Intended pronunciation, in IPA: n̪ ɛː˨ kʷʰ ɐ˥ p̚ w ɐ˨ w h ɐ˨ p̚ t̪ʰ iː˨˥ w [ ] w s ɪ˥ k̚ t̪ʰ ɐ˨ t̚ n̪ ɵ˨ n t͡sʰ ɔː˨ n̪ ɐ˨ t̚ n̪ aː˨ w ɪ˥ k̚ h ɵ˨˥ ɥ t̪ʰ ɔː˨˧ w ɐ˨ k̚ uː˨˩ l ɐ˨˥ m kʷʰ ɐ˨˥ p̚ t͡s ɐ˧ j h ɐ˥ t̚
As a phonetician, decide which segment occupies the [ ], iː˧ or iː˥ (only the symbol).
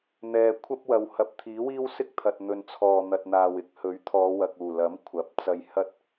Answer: iː˥